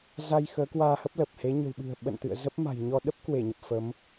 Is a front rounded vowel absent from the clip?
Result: yes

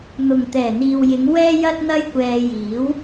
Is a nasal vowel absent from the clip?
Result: yes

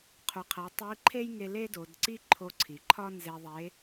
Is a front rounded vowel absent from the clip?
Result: yes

